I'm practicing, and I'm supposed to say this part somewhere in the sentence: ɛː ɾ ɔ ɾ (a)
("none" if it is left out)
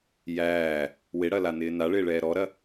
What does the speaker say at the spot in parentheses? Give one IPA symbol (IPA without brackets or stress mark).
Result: ɐ